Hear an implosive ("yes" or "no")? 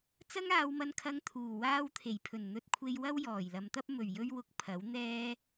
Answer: no